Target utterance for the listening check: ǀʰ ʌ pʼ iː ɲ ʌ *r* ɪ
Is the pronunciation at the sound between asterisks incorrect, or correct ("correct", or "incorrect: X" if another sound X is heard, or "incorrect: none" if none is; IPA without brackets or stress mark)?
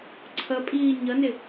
incorrect: n